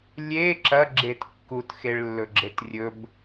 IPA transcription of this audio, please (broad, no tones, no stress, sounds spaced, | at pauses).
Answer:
lʲ e ǁ ɐ ɡ͡ǁ e t kː u t x e ɭ lː ɵ ɡ͡ǁ e t rʲ ɵ b